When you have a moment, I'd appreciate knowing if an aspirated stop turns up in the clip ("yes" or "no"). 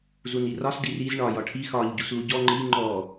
yes